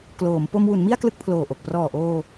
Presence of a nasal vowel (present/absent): absent